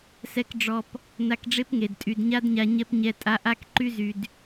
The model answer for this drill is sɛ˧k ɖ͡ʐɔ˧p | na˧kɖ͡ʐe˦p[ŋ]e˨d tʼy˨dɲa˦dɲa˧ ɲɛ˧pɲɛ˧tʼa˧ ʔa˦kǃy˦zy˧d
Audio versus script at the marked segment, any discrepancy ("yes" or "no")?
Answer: no